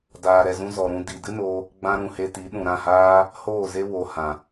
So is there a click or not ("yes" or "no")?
no